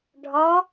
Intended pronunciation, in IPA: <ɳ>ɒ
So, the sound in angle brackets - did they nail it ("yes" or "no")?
no